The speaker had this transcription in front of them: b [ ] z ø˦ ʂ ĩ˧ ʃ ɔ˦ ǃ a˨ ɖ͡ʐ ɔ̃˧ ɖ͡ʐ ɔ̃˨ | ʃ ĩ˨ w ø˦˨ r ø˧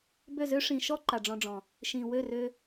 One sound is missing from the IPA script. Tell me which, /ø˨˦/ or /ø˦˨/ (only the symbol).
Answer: ø˦˨